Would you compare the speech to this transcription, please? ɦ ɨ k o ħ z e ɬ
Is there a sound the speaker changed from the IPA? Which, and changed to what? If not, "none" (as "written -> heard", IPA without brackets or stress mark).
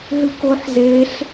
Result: none